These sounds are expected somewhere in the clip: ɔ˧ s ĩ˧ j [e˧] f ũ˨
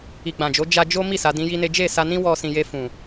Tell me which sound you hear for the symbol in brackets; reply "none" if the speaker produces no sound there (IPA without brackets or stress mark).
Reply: e˧